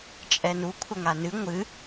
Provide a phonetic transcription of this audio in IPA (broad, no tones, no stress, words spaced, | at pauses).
t͡ʃʼɛnu kʷʰɐŋanɨ ŋʷɨ